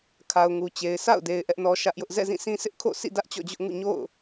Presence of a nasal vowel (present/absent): present